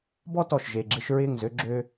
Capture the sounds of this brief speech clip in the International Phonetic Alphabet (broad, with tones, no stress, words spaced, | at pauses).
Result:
bɔ˦tɔ˨ʃ ʒe˨ɡ͡ǁɪ˧ʃ ɹɪː˦˨ŋzø˦ ɡ͡ǁø˧